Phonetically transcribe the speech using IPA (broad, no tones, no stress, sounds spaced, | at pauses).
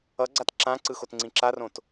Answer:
ʌ ɡ͡ǀ a t ǁ ã ǀ ɯ x o t ŋ͡ǀ ĩ ǁ a r õ t